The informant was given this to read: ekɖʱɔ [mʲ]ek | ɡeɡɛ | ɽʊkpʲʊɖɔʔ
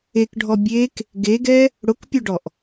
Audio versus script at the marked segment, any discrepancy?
yes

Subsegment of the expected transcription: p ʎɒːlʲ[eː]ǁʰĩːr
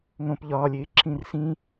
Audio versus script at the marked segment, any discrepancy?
no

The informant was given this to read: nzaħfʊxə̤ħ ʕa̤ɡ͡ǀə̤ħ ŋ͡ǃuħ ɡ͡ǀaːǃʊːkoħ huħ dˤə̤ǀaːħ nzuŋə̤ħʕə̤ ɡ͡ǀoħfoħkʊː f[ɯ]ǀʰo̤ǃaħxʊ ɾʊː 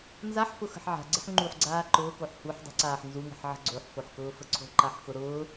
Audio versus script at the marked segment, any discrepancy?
yes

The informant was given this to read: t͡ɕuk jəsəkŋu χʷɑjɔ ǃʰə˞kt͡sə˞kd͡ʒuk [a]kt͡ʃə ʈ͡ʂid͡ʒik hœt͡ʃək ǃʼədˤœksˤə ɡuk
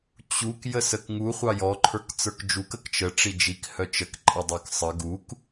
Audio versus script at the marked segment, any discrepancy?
yes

